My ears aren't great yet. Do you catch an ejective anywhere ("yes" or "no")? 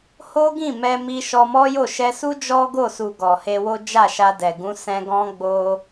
no